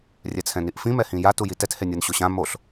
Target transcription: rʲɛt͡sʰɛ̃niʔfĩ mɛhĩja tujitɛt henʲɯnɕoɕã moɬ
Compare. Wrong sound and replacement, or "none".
none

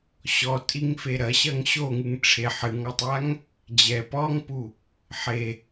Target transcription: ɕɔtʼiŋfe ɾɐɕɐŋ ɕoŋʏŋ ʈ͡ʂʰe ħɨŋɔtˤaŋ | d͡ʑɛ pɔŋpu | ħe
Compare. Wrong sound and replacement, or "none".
ʏ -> ɨ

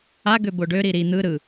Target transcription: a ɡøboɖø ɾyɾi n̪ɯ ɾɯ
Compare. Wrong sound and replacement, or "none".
y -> i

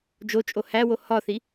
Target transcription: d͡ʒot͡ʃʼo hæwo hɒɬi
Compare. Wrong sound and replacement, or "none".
ɬ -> θ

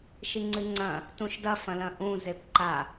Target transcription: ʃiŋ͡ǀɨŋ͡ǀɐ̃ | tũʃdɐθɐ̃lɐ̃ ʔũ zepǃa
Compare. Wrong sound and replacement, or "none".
θ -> f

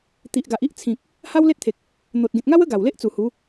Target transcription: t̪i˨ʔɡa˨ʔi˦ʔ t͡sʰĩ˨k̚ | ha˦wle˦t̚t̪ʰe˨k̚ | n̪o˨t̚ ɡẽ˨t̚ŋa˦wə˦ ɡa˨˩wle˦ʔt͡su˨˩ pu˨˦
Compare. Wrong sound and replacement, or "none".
p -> h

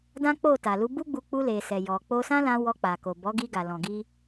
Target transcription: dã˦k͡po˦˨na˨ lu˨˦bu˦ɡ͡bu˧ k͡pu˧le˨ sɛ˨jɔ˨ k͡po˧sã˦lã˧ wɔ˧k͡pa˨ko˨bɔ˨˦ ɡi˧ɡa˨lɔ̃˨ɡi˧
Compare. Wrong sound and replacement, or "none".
n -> t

